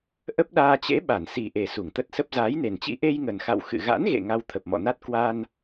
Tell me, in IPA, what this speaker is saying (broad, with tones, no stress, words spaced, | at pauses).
ʔə˦˥p̚ɗaː˧t͡ɕḛ˧˥ ɓa˧˩nsi˨˩ʔe˨˩ su˧˩ŋt̪ə˦˥t̚sə˦˥p̚ zaː˨˦jne˨˩nt͡ɕḭ˧˥ ʔe˧jŋə˨˩nxa̰˧˨w xɨ̰˧˨ ɣa̰˧˥nɣḛ˧˨ ŋa˧wt̪ʰə˨˩p̚ mɔ̰˧˨na˦˥t̚ kwa˧n